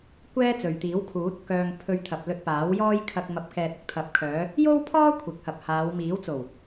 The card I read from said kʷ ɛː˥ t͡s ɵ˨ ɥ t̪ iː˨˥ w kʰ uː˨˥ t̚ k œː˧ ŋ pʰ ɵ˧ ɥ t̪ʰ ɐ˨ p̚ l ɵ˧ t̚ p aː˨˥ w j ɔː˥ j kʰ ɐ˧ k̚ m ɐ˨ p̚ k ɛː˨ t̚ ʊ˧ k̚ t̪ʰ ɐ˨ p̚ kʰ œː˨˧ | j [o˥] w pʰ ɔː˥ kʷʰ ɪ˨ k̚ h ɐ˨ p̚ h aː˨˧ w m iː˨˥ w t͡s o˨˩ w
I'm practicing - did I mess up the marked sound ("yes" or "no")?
no